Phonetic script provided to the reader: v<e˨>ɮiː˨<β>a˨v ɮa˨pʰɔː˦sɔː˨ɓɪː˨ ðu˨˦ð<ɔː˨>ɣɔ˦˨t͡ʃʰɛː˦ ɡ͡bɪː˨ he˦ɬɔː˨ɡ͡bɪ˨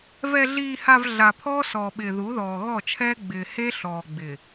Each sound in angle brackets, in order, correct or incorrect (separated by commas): incorrect, incorrect, correct